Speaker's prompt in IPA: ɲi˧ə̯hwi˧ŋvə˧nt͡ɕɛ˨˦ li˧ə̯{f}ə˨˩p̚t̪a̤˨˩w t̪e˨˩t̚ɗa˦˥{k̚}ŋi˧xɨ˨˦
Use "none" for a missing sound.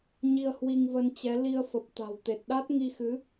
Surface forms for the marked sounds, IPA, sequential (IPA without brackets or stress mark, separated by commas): f, t̚